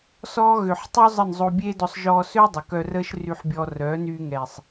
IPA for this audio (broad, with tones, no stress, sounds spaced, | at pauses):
s ɔː˦ ɣ ø˨ ħ tˤ y˦ zˤ ə˦˨ n zˤ o˧ bʲ eː˦ d ɔ˧ sˤ ʒ ɔː˧ s ø˦ dˤ ə˨ k œ˧ r əː˦ ʃ r y˧ ħ bʲ ɔ˧ r œ˨˦ n yː˧ ŋ ɛː˨ sˤ